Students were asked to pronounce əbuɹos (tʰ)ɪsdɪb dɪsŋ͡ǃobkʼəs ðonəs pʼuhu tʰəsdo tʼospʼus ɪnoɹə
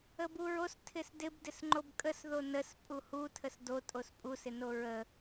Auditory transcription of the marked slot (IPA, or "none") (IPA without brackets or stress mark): tʰ